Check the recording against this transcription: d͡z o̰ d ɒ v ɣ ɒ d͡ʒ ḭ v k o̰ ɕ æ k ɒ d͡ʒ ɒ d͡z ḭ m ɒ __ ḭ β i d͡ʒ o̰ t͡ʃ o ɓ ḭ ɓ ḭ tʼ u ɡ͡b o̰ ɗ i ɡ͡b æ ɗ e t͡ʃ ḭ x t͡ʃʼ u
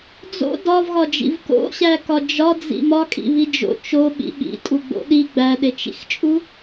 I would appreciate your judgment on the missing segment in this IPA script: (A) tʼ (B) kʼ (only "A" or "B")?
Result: B